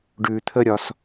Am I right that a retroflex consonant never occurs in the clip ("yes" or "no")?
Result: no